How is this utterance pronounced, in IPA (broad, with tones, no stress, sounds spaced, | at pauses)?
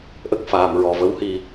ʔ ə˦˥ k̚ f aː˨˩ m ɹ ɔ˨˩ v ə˧˥ w h i˧